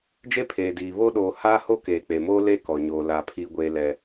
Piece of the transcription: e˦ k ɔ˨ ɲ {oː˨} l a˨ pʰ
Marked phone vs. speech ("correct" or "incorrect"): correct